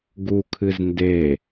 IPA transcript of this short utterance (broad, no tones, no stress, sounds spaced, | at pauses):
ɡ u kʰ ɨ z n d e